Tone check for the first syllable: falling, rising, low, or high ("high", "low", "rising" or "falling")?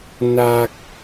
low